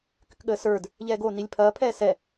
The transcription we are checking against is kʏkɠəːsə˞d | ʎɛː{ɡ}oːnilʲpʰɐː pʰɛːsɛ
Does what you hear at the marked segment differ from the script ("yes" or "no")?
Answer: no